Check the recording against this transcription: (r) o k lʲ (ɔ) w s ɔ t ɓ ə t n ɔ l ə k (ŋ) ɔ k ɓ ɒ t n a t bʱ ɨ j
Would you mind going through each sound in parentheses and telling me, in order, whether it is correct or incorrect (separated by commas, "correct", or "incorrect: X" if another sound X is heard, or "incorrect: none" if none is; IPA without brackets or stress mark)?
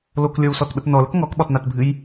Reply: incorrect: l, correct, correct